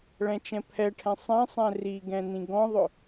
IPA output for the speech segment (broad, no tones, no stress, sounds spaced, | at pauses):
ɭ ɛ̃ t͡ʃ ɛ̃ pʰ ɛ ʈʰ ɛ̃ sˤ ɛ̃ sˤ ɛ̃ r i ɡ ɛ̃ n ĩ ɡ ɔ̃ ðˤ ʊ